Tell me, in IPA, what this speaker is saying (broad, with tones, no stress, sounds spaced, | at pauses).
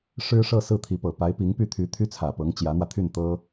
ʂ ɻ̩˥ ʂ ɤ˥˧ s ɹ̩˥˩ t̪ʰ i˧˥ p ɤ˨˩ p a˧˥ ɪ̯ p i˧˥ ŋ p y˥˩ t̪ʰ y˧˥ t̪ʰ y˥ t͡sʰ ä˨˩ p ɤ˧˥ ŋ t͡ɕ j ä˧˥ n̪ w ä˧ t̪ʰ y˥˩ n t̪ ɤ˥